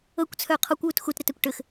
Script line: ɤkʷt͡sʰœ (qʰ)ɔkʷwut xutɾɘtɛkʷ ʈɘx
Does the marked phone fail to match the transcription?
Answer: no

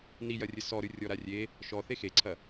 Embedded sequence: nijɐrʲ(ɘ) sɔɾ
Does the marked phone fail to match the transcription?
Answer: no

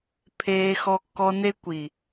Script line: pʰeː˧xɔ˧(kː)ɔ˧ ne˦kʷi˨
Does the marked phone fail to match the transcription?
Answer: no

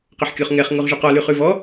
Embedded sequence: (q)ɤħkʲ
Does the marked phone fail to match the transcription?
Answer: no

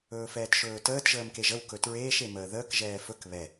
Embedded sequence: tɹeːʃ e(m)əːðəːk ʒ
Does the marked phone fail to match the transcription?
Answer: no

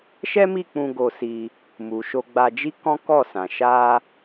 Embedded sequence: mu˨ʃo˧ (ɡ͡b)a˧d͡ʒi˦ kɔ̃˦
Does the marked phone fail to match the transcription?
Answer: no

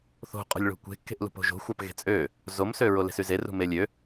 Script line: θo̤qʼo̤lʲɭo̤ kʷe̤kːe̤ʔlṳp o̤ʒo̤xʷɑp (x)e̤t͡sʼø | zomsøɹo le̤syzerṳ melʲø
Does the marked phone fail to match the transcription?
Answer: yes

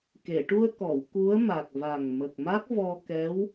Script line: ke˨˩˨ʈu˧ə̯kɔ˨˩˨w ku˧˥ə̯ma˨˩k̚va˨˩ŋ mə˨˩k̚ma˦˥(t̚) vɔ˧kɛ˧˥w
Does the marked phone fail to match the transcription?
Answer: yes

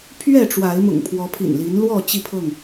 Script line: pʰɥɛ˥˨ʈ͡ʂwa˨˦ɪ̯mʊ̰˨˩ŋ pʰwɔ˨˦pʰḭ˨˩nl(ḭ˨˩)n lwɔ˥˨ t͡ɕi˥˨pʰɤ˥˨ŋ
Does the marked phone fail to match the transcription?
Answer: yes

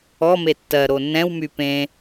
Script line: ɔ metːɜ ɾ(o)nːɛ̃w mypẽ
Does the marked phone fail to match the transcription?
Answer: no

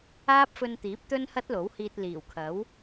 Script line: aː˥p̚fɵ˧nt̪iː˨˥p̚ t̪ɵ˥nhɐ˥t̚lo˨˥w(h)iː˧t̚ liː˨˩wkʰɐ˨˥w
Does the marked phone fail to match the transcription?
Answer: no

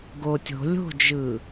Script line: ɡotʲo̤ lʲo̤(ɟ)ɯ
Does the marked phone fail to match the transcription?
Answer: yes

